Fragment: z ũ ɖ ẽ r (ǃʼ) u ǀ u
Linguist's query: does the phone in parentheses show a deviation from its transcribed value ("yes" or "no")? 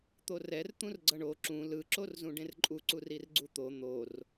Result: no